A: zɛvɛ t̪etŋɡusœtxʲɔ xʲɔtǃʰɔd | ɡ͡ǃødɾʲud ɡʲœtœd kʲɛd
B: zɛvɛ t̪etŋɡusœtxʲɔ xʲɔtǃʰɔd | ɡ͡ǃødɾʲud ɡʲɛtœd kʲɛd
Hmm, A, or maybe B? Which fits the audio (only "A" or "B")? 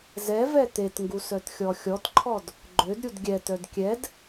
B